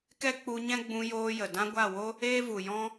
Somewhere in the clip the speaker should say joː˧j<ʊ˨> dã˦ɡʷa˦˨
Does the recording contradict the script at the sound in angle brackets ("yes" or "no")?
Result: yes